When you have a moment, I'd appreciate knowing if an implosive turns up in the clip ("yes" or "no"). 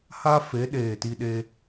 yes